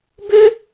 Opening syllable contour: high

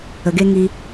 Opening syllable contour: low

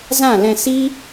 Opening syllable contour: falling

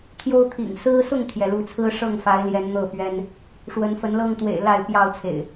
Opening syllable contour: high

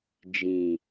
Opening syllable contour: low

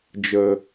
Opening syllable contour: high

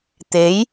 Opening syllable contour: rising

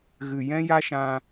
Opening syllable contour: low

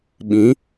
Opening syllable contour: rising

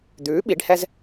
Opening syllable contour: rising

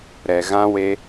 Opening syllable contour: low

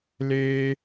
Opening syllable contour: high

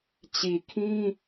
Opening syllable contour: low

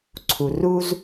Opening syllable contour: low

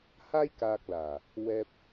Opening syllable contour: high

